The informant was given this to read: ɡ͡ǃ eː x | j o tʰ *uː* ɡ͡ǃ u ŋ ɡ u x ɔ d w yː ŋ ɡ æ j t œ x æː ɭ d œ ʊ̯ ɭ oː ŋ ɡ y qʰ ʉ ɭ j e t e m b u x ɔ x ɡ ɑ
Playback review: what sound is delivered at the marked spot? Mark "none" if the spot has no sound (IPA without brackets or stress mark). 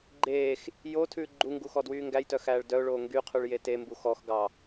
ʉː